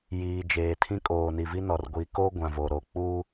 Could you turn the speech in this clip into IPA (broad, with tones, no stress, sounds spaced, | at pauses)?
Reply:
j iː˨ d͡ʒ eː˨ tʰ ĩ˦ kʼ oː˨ n i˨ v i˦ n ɔ˨ r ɡʷ i˨ k o˦ ɡʷ ã˨ v o˨ ɾ o˨ k͡p uː˦